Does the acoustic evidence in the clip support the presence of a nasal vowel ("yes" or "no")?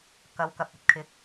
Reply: no